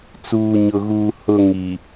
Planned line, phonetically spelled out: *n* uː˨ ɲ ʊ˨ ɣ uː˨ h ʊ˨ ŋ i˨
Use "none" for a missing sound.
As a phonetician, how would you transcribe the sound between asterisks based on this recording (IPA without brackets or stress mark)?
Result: t͡s